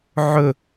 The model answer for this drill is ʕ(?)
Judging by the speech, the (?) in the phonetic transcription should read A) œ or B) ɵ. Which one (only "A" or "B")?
B